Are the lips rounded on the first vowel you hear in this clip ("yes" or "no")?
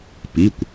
no